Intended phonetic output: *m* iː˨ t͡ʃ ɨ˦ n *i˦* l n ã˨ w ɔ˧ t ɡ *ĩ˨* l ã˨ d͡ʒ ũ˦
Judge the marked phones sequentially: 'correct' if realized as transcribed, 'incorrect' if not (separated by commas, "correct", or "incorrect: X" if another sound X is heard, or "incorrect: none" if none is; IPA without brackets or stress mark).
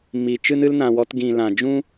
correct, incorrect: ɨ˦, correct